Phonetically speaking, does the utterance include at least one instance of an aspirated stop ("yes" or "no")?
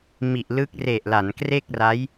no